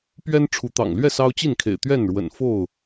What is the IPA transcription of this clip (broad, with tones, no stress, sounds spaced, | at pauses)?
p ɥ ɛ˦ n ʈ͡ʂʰ u˨˦ t̪ ɑ̰˨˩ ŋ l ɥ ɛ˥˨ s ɑ˦ ʊ̯ t͡ɕ i˥˨ n kʰ ḛ˨˩ ɪ̯ t̪ ɥ ɛ˥˨ n ɻ w ə̰˨˩ n f o˥˨ ʊ̯